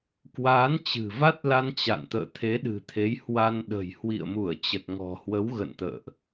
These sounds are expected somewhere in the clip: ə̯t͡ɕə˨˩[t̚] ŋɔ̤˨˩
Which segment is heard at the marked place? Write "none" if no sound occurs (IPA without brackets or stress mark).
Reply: t̚